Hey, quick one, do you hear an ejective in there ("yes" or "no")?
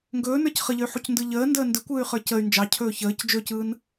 no